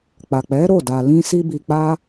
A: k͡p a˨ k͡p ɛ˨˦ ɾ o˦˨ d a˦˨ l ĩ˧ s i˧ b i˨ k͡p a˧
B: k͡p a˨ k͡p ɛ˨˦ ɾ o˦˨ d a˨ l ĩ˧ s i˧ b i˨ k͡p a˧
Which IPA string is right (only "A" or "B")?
B